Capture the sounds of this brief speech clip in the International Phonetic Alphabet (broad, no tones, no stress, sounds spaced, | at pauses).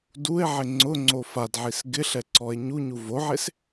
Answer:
d u e̯ ʕ ɪ ŋ͡ǀ ʊ ŋ͡ǀ o f a d ʕ i s ɡ ɪ ɬ ɛ ǀ ɔ e̯ ɲ u ɲ u v o ʕ e s